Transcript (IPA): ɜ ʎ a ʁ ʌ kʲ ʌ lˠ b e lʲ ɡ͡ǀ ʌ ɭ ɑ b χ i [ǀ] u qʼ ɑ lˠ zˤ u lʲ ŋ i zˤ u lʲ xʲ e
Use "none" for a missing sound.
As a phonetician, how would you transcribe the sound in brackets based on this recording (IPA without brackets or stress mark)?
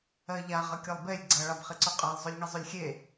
ǀ